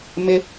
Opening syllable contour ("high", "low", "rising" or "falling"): high